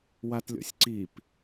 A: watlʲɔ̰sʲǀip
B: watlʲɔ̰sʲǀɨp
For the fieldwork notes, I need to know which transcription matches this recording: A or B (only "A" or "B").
A